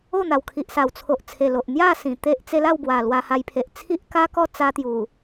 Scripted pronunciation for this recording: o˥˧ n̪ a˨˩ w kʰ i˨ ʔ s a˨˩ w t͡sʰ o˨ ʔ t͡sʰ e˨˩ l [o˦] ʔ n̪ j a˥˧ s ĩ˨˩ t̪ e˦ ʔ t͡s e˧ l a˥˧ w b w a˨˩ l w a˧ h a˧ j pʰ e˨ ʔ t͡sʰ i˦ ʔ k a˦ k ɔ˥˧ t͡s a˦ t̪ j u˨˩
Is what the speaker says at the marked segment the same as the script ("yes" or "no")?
no